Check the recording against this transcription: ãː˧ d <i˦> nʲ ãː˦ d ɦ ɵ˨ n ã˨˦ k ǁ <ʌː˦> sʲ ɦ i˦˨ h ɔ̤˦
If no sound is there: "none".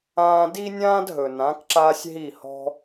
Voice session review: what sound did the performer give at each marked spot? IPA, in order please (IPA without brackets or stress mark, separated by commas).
i˦, aː˦